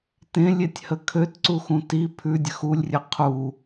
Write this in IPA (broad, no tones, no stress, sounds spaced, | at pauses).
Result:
t ẽ lʲ e tʲ h ə kʰ ø t ǀ u x ũ t i pʰ ʉ dʲ ə x u lʲ rʲ ɘ qʰ u